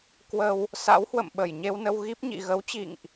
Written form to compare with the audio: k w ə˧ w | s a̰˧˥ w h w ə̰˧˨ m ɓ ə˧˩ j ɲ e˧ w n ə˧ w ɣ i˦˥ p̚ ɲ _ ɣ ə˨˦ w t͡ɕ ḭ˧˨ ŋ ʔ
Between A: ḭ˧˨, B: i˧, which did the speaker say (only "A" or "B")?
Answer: A